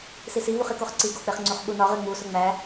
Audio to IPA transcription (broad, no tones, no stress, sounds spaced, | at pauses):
s i s i v u χ i k o χ ǀ i ɡ o k͡p e χ ŋ͡ǀ u χ ɓ u n ɒ ʁ e ŋ͡m u s o ŋ͡m æ